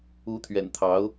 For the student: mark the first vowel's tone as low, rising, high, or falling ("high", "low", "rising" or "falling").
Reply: rising